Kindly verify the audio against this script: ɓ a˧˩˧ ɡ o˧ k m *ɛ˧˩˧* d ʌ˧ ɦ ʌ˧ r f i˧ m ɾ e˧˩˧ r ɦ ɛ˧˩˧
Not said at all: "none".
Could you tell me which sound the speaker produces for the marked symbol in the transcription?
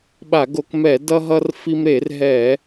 ɛ˧˩˧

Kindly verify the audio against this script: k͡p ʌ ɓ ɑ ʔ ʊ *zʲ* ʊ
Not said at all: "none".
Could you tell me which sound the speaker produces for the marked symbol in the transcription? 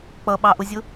zʲ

